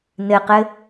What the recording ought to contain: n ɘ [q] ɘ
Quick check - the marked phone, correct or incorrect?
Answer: correct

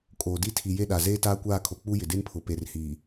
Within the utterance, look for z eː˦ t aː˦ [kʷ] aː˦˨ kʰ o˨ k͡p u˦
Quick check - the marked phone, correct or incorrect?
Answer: correct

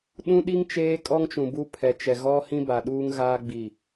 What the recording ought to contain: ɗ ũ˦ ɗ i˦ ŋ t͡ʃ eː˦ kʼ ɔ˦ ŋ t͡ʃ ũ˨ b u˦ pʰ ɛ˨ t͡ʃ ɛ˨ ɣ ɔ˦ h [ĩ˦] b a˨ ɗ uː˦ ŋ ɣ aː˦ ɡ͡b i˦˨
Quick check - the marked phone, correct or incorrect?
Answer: correct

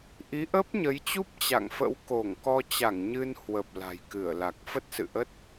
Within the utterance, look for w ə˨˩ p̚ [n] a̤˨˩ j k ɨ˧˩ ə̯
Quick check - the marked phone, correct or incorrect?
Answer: incorrect: l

